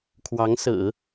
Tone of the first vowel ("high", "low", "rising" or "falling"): rising